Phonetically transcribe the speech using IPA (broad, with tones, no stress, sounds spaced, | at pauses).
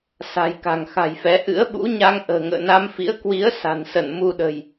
s a̤˨˩ j k a̤˨˩ ŋ x a̤˨˩ j f ɛ˨˦ ʔ ɨ̰˧˥ ə̯ ɓ ṵ˧˥ ɲ a˧ ŋ ʔ ə̤ː˨˩ ŋ ə̰ː˧˨ n a˧ m f ḭ˧˥ ə̯ k w i˨˦ ə̯ s a̤˨˩ n s ə˧˩ n m u˧ ɗ ə̤˨˩ j